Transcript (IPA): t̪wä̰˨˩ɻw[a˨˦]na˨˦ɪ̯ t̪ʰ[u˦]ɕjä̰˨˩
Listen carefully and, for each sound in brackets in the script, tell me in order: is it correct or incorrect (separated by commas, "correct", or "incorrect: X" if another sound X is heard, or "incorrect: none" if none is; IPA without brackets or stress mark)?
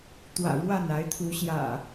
incorrect: a˥˨, incorrect: u˨˦